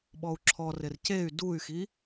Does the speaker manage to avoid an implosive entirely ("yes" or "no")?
no